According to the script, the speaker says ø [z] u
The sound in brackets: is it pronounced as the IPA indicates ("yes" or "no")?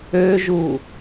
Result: no